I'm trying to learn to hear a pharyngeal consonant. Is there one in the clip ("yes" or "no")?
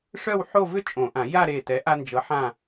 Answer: yes